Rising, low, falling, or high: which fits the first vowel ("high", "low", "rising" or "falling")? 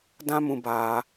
high